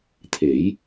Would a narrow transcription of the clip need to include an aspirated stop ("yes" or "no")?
yes